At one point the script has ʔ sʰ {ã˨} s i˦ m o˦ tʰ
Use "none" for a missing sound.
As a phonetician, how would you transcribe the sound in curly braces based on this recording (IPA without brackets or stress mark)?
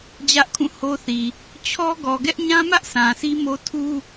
ã˨